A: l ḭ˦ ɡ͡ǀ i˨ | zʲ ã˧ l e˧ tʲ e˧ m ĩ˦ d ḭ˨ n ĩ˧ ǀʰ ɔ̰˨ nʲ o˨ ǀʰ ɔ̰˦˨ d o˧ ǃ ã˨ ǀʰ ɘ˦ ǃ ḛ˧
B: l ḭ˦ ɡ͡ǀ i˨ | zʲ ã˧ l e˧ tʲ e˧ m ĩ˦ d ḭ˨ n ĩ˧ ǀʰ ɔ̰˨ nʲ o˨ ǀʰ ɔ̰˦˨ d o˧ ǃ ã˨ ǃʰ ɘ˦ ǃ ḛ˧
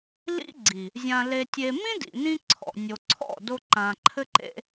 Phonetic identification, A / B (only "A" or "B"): B